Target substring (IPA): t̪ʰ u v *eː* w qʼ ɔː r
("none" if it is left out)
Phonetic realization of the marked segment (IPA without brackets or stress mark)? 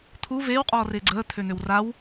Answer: eː